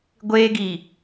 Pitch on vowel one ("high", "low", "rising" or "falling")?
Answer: high